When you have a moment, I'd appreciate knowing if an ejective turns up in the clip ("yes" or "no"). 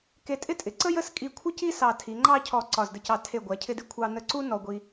yes